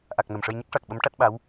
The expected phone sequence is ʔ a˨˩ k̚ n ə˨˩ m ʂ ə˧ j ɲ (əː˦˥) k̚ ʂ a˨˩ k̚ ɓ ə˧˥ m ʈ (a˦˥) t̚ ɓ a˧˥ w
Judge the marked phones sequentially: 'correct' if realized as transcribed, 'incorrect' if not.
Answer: incorrect, correct

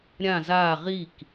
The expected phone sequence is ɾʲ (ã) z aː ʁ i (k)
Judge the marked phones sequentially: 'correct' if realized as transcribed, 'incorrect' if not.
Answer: correct, correct

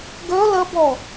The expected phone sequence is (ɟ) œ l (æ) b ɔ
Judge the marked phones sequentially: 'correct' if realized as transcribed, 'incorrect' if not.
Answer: incorrect, incorrect

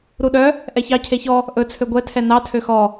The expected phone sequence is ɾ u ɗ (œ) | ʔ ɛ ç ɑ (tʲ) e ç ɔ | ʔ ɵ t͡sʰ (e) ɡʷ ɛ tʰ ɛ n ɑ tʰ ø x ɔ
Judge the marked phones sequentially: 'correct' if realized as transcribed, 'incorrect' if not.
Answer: correct, incorrect, incorrect

